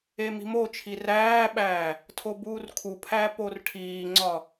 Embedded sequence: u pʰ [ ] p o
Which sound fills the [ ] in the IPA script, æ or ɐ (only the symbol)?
æ